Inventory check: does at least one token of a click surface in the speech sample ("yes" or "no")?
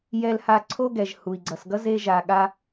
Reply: yes